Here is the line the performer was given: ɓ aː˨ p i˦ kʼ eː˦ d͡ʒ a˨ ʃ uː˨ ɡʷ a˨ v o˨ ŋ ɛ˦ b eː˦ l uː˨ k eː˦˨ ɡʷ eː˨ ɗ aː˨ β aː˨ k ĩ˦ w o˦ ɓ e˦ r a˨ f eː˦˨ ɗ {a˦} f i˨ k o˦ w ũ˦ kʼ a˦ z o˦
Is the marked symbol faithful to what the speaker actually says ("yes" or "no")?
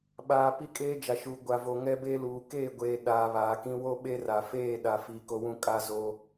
no